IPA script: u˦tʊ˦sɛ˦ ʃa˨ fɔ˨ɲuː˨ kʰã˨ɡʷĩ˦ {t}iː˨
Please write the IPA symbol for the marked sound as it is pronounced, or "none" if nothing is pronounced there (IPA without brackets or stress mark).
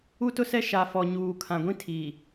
tʰ